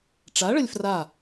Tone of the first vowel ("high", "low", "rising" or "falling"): rising